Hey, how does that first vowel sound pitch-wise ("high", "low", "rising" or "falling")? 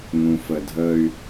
low